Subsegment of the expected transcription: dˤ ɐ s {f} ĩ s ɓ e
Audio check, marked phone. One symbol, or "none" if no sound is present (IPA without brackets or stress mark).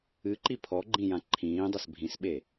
bʱ